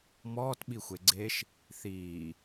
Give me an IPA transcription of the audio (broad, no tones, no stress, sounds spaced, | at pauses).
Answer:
m ɔː t ɓ i xʷ e ɡ͡ǀ e ʃ | θ iː